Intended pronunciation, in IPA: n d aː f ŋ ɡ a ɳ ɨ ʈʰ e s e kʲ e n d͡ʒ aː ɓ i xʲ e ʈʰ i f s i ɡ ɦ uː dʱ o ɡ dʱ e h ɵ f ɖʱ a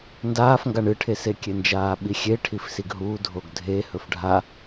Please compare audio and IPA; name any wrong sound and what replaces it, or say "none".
none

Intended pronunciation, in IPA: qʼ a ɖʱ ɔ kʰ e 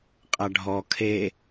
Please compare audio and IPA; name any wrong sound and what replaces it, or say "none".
none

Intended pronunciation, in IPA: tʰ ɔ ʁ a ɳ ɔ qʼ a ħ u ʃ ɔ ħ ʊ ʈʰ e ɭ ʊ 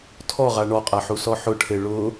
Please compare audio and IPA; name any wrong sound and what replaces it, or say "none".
ʃ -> s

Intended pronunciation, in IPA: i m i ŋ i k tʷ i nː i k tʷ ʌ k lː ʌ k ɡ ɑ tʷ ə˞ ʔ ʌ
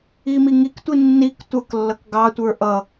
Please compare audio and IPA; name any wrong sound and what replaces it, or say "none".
none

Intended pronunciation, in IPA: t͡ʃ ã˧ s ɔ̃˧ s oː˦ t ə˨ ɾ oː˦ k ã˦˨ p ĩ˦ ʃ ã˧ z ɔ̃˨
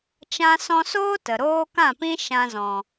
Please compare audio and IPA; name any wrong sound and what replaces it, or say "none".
none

